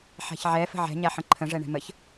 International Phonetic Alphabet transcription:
ħ a̤ ç ʕ ɛ f ə̤ ʕ ɛ̤ ɲ a ħ ə̃ ǃʰ ə̃ ʐ ɛ ɳ ɛ̤ m ə ç

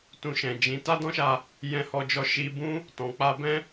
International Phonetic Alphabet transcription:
t ũ˧ ʃ ɛ̃˨ d͡ʒ ĩ˨˦ t a˦ d ɔ̃˦ ʃ a˧ | j ɛ̃˧ h ɔ˧ d͡ʒ ɔ˧ ʃ i˧ b ũ˦ | t ɔ̃˨ k͡p a˧ b ɛ̃˦

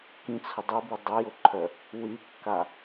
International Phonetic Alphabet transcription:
k ĩ t͡sʰ ʊ dˤ i b i dˤ e j ʊ ǃʰ œ | w y kː a

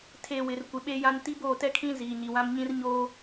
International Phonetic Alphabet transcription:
tʰ e˨ w ɪ˨ r kʷ ɪ˨ ɓ e˦ j ã˦ n t i˦ b oː˦˨ t ɛ˦ kʰ ĩ˦ z iː˨ ɲ i˨ w ã˦ m ɲ ĩ˦ r ɲ oː˦

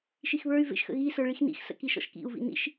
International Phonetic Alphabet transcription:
ʃ i x β ə˞ y̯ v ḛ ʃ x ə̰ ɣ i s ə˞ ɭ i x n ḭ x s ə̰ k i ʃ ɔ̰ ʃ k ḭ u̯ v ḭ n ḭ ʃ

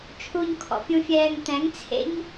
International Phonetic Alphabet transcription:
t͡ʃʰ u ɲ kʰ ɔ̰ pʲ ũ fʲ ɛː ŋ t̪ ɛ̃ ŋ t͡sʰ ḛ ɲ

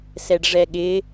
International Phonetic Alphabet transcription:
s ɛ ɖ ʐ ɛ ɠ ɪ

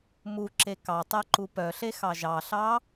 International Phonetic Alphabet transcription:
m u ǁ e k ɑ tˤ ɛ ǃ u p œ ɬ e x ɑ ʒ ɑ ɬ ɑ

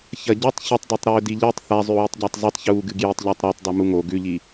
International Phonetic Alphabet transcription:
ç ɐ ɟ ʉ tˤ ç ɵ tˤ d o tˤ ɾ ɵː d i ʎ ɨ tˤ θ a zˤ ʉ w i tˤ ɟ a tˤ zˤ i tˤ ç uː ɡ ɨ ɡ j i tˤ ʎ a tˤ ɾ o tˤ dˤ ʉ m u ŋ o ɡ ʉ ʎ i

